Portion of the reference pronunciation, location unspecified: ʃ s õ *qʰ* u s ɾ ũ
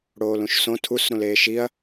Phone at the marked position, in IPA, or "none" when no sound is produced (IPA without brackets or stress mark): tʰ